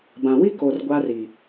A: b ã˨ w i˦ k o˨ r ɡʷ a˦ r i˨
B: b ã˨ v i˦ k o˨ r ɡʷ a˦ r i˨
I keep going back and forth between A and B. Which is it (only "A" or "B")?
A